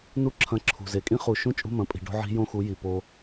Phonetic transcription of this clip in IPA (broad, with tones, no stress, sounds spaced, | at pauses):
n u˦ ǁʰ ɐ̃˧ ǁʰ ṳ˨ z e˨ kʼ ĩ˦ χ u˦˨ ʃ ũ˦ t͡ʃʼ ṳ˦ m ɐ̃˨˦ pʼ i̤˨ ɖ o̤˦ ʕ i̤˦ j õ˦ x u˨˦ j i˨ p o˧